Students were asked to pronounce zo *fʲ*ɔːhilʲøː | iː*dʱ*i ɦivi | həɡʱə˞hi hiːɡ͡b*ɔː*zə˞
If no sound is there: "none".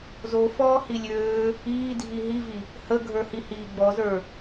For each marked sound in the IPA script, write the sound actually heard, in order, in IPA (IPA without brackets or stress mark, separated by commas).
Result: f, dʱ, ɔ